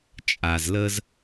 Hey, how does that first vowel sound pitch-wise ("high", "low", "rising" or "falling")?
low